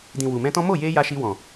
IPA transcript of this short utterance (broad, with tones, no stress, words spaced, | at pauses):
dĩ˨ wu˨mɛ̃˧ tɔ̃˦ mo˦˨je˧ ja˧ʃi˧ wɔ̃˨